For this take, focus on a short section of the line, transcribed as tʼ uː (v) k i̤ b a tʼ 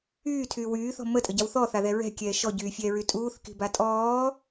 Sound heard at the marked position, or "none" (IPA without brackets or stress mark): θ